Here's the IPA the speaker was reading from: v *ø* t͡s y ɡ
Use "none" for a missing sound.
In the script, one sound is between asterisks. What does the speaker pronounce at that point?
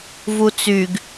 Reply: u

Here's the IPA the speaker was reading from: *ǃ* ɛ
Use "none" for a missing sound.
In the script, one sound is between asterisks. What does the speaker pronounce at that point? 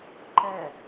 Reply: ǃ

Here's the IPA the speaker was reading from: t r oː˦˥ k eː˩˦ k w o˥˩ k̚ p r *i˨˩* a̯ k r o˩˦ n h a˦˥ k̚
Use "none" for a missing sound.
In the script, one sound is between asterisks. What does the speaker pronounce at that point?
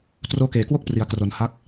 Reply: i˩˦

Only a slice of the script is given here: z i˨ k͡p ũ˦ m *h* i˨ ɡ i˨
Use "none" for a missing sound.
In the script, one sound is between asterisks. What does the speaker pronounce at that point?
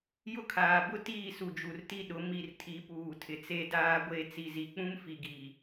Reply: f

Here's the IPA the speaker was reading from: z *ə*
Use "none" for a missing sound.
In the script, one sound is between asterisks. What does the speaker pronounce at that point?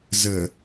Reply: ə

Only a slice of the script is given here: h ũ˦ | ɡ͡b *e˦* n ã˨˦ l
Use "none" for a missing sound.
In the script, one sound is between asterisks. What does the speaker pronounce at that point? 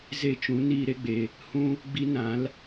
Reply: i˦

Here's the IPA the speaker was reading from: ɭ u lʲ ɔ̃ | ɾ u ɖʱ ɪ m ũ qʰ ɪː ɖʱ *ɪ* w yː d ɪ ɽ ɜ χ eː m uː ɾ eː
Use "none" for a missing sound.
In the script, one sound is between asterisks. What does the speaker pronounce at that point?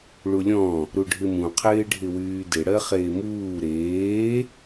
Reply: ɪ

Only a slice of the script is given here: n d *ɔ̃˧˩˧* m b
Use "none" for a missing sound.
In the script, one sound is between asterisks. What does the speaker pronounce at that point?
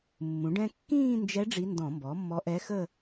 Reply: ɔ̃˧˩˧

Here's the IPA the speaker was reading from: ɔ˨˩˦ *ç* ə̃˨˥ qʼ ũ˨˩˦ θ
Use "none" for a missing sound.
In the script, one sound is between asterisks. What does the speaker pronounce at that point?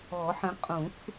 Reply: ħ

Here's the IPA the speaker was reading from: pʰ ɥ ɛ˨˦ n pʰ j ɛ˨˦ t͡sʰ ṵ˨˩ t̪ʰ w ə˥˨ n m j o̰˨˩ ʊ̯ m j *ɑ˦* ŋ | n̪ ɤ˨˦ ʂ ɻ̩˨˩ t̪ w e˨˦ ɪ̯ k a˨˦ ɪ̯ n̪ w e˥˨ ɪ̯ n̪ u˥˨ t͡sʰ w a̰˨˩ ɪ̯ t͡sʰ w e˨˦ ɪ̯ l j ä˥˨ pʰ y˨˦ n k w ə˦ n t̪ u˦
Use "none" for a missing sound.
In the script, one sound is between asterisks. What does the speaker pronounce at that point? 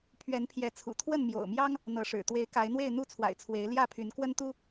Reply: ɑ˦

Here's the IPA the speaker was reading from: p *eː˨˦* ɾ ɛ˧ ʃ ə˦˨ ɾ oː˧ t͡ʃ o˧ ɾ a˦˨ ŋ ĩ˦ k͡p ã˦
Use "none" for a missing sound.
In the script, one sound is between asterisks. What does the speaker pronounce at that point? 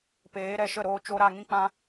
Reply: eː˨˦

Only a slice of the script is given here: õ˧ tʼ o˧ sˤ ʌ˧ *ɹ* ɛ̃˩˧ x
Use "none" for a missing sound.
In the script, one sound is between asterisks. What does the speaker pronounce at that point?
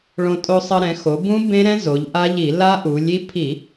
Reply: ɾ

